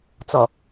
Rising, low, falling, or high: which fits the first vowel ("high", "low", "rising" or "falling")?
low